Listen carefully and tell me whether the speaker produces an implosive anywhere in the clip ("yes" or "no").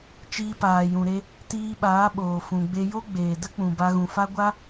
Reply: yes